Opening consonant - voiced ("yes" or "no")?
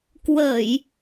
no